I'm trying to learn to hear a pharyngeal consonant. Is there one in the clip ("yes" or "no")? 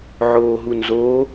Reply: yes